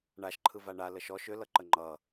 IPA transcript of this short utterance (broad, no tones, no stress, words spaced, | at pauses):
ɳaʃ ǃʰɯvaɳa ləʃɔʃ ʏ lʌǃəŋ͡ǃʌ